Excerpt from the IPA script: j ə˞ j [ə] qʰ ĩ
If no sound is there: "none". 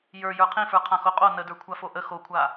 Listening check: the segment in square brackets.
ə˞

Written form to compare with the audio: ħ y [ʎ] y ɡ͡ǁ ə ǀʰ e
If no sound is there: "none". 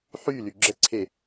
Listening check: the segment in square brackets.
l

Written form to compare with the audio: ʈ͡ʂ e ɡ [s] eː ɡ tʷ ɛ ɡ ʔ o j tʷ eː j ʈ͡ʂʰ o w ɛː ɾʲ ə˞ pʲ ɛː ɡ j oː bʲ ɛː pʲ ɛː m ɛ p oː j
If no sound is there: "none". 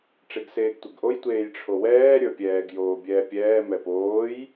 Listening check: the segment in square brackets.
s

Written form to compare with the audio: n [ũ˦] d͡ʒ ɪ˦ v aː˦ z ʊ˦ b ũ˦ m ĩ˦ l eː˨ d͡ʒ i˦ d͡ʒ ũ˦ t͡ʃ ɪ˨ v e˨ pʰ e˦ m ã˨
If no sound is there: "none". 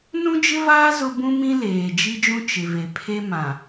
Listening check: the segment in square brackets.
ũ˦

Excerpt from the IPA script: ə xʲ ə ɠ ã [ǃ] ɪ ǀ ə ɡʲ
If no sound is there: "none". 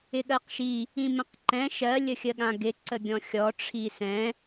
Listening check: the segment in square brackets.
ɡ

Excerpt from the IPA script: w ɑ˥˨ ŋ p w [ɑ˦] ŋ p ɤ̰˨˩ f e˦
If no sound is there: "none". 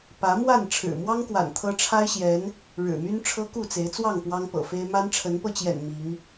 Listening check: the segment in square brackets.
ɑ˦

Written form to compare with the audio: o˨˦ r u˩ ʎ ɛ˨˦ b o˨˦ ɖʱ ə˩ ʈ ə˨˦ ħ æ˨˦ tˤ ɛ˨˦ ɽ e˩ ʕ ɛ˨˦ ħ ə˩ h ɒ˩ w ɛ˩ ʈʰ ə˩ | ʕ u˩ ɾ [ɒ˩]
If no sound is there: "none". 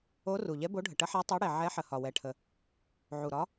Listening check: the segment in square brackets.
ɒ˨˦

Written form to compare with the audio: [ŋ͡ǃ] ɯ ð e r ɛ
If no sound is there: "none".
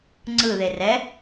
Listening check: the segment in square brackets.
ŋ͡ǀ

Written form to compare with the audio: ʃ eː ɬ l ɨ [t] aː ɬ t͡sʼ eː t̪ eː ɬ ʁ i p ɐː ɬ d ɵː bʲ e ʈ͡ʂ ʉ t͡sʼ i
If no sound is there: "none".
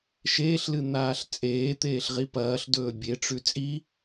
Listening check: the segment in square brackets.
n̪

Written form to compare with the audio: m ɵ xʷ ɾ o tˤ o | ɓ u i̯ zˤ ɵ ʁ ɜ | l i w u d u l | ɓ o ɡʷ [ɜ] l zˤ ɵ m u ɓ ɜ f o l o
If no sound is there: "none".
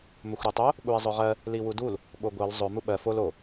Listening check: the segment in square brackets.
ɜ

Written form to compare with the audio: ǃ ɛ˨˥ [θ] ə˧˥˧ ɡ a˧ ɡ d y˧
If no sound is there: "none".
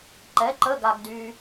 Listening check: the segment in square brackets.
ǃ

